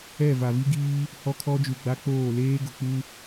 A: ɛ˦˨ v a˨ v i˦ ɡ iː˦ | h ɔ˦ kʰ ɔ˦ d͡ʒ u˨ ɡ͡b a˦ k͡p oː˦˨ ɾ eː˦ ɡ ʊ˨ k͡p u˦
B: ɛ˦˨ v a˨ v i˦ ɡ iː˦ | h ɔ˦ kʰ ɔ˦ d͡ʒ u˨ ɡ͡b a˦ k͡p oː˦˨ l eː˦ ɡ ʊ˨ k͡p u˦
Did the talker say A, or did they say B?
B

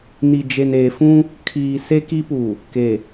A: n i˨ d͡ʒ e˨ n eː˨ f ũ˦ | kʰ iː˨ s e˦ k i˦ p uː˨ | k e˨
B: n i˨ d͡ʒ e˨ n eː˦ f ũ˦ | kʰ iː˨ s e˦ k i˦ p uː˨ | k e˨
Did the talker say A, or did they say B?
A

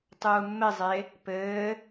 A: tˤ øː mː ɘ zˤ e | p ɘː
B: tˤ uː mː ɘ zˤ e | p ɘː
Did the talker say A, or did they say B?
B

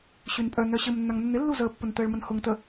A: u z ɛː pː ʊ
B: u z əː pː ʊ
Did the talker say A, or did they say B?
B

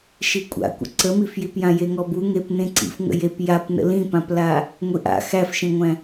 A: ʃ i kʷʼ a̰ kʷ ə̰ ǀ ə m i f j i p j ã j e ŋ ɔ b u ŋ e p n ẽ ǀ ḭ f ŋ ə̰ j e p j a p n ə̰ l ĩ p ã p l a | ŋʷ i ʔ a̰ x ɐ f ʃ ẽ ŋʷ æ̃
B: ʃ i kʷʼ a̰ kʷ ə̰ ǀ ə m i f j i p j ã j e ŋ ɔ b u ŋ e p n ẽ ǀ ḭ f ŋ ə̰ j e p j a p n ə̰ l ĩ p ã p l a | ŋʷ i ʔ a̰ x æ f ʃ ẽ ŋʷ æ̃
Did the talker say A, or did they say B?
B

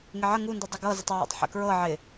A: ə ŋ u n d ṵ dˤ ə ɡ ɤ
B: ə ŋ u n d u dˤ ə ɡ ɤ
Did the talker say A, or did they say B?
B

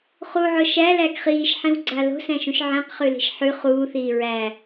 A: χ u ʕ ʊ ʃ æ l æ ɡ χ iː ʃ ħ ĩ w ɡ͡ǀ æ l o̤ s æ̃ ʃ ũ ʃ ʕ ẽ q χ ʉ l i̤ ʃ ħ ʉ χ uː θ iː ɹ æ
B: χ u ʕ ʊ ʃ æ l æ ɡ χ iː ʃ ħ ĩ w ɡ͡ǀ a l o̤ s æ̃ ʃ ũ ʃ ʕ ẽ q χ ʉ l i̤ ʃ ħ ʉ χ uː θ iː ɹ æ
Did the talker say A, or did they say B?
B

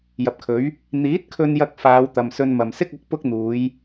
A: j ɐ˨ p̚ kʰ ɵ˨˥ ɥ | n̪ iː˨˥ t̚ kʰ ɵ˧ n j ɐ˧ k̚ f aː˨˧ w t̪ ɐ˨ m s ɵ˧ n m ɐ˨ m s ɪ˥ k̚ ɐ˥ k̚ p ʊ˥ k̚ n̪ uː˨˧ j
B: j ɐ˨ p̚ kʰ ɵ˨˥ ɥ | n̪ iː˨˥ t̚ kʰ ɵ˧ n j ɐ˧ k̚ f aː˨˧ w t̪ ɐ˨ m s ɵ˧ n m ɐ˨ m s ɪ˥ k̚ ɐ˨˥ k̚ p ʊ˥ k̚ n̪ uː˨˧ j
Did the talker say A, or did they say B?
B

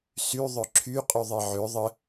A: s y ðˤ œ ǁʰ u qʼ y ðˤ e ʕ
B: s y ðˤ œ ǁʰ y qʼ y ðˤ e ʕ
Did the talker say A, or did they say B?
B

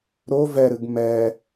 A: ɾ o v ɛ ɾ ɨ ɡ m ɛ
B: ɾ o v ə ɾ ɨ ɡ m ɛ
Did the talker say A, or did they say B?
A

